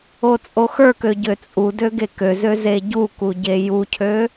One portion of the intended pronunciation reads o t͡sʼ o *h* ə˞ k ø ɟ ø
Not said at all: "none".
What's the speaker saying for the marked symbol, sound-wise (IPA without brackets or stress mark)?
x